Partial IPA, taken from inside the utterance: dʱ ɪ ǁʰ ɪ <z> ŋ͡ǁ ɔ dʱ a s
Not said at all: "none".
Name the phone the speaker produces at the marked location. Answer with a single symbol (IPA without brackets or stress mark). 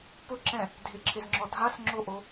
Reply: z